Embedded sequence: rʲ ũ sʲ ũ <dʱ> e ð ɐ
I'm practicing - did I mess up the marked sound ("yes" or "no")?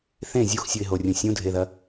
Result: no